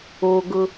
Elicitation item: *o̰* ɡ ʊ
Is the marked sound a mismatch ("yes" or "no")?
yes